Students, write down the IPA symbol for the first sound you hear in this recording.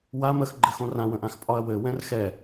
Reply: w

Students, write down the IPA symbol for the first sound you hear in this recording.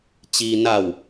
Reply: t͡ɕ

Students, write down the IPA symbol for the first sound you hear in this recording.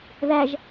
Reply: ð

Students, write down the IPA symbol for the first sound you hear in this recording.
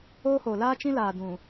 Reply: oː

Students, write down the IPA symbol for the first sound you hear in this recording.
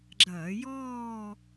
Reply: ɡ͡ǁ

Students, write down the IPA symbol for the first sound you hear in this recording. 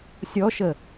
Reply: sʲ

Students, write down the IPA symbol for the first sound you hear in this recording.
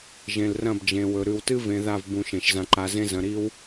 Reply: ʒ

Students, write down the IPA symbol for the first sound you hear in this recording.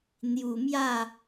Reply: n̪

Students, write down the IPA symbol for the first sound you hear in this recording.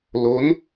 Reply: l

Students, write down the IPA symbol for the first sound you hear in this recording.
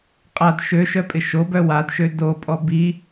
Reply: qʼ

